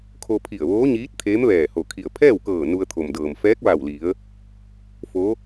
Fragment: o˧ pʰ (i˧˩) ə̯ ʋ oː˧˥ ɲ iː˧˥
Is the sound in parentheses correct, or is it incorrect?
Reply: correct